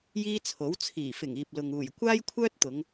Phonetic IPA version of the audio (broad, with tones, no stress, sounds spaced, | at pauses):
j iː˥ t͡sʰ o˨˥ w t͡sʰ iː˨˩ f ɪ˨˩ ŋ iː˨ p̚ l ʊ˨ ŋ uː˨˩ j kʷ aː˥ j kʷʰ œː˥ t̚ t̪ ʊ˨˧ ŋ